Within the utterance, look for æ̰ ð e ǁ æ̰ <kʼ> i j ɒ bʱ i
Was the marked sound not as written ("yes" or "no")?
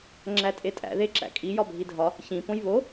no